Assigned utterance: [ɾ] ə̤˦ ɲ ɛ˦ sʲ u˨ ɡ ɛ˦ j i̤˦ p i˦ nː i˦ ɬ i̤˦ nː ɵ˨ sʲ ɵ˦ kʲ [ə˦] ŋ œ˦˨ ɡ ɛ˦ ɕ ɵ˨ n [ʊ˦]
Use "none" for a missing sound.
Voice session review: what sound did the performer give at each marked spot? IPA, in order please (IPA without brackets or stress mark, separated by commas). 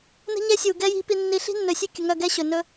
n, ə˨, ɵ˦